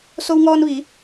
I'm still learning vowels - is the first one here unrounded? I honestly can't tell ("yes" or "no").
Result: no